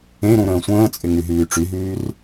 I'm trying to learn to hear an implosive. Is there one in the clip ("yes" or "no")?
no